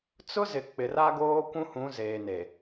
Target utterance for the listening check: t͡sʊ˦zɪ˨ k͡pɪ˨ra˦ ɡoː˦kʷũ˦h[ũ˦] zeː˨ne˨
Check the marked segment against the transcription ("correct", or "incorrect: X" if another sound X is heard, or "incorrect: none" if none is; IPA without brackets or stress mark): incorrect: ũ˨˦